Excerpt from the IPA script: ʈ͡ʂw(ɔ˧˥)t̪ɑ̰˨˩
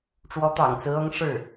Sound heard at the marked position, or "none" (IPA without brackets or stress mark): ɔ˧˥